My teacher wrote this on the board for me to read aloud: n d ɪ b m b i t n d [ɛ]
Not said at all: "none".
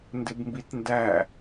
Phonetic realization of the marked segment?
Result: æ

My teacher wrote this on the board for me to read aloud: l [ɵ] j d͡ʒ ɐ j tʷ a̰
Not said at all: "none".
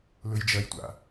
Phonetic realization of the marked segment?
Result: ɵ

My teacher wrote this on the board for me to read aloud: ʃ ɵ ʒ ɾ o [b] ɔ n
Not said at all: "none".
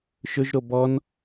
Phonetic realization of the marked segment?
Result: b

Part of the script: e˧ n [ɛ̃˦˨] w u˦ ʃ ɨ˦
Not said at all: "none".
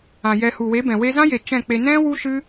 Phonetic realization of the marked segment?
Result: ɛ̃˦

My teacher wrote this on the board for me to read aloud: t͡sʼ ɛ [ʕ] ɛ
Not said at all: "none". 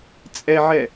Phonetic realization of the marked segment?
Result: ʕ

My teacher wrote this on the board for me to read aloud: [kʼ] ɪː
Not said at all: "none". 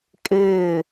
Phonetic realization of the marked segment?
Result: kʼ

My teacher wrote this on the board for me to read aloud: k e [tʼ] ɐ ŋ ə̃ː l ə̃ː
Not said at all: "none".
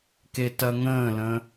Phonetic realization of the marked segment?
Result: t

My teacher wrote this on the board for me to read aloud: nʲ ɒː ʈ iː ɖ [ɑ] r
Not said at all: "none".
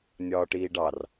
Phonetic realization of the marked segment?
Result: ɑ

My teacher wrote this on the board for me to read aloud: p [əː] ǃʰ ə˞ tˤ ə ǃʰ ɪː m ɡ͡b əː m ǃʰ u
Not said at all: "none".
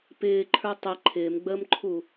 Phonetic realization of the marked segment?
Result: ɪː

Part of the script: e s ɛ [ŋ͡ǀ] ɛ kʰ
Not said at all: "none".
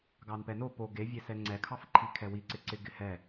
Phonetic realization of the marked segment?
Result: ŋ͡ǀ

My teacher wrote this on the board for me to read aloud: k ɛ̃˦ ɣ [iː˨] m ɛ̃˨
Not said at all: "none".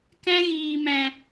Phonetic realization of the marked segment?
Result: iː˨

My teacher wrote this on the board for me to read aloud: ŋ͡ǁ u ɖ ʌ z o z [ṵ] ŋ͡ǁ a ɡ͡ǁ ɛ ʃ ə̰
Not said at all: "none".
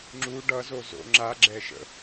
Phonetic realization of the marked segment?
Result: o̰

